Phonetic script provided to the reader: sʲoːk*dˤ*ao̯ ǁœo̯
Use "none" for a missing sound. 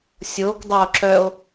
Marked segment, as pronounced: dˤ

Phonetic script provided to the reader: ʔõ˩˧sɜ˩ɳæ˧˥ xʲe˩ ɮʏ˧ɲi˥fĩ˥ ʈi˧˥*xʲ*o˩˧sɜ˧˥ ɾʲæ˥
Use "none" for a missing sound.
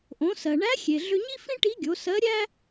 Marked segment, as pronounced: ɡʲ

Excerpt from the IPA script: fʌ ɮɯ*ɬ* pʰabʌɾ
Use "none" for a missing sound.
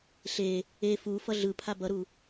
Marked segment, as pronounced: none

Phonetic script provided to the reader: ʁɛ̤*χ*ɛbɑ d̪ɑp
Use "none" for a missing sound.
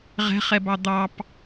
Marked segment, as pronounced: χ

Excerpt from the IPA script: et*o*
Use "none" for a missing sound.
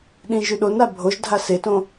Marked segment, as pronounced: õ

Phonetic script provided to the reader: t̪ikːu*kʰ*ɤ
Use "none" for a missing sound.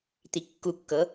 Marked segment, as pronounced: kː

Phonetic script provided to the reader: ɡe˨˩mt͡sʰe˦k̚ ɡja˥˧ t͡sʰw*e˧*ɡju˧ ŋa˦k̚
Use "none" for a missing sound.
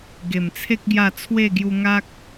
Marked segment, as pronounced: e˥˧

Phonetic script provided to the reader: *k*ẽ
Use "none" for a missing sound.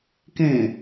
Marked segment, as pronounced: k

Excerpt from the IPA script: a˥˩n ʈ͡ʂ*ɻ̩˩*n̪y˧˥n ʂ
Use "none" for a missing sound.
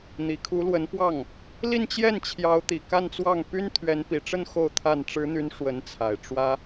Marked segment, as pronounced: ɻ̩˧˥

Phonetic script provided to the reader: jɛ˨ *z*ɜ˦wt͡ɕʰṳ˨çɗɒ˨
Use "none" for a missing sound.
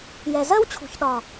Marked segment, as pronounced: z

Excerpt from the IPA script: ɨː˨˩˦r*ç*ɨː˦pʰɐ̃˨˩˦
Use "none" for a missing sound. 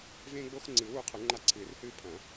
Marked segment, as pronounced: h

